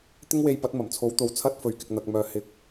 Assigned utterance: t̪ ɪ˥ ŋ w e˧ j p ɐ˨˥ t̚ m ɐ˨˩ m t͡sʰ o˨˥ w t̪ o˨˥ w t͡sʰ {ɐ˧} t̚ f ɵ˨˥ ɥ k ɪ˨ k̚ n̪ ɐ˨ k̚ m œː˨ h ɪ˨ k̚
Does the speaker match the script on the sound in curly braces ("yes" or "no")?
no